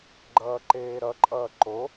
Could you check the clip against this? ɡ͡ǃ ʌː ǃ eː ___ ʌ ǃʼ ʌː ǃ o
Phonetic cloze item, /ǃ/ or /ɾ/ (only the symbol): ɾ